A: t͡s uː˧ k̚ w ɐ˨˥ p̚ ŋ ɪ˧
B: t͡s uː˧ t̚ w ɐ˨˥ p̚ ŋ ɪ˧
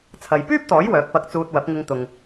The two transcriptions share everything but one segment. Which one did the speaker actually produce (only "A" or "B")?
B